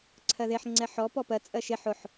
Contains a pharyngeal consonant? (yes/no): yes